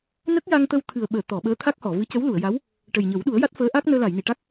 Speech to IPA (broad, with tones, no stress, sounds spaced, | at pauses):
n ə˦˥ k̚ j a˧ ŋ t̪ ə˧ w t̪ʰ ɨ˨˩ ə̯ ɓ əː˨˩˨ t̪ ɔ˨˩˨ ɓ əː˧˥ t̪ʰ a˦˥ k̚ h ɔ˨˩˨ v ɨ˧˥ c ə˧˥ w l u˨˩˨ ə̯ j a˧˥ w | ʈ ə˨˩ j ɲ ə˨˩˦ w ɗ u˨˩˦ ə̯ j a˦˥ t̚ f əː˧˥ ʔ a˦˥ k̚ n əː˧ l a˨˩˨ j n i˨˩˨ ʈ a˦˥ k̚